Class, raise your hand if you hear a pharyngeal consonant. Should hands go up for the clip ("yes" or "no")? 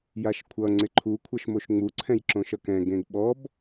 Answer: no